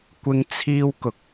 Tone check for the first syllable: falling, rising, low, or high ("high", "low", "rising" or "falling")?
high